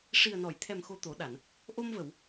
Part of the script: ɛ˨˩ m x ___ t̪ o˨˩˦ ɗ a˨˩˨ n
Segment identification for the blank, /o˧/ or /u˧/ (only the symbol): o˧